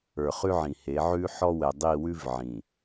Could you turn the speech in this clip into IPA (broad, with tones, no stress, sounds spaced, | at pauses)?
ə˞˨ χ ʉ˦ ʕ ĩ˨ h e˨˦ ʕ ʉ˦ ħ ɔ˦ w ɛ˨ dˤ i˦˨ w ʉ˦ v ʕ ĩ˨